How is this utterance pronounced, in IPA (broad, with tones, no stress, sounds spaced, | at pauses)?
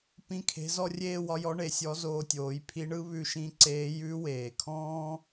p ĩ˥ kʰ e̤˧˥ z ɔ˥ rʲ eː˥ w ɒ˧˥ j ɔ˧˥ ɳ e˩˧ sʲ ɔ˧˥ z oː˧ tʲ oː˩˧ j pʰ i˧˥ ɳ ɯ˧˥ β ʉ˧ ʃ ĩ˧˥ ǀ eː˧˥ j ʉ˧˥ w eː˩ kʰ ɔ̃ː˥